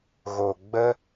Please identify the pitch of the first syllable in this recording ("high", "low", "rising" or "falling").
low